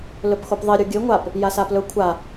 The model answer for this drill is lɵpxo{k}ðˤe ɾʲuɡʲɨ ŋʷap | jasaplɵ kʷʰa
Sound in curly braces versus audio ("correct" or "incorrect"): incorrect